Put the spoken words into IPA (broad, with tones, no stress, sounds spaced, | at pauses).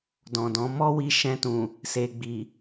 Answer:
d ɔ̃˨ d ɔ̃˨˦ m ɔ˦ w i˧ ʃ ɛ̃˧ t ũ˨ | s e˨ ɡ͡b i˨